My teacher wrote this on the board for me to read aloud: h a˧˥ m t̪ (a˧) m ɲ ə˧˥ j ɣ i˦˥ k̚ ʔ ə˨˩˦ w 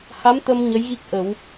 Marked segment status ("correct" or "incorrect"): incorrect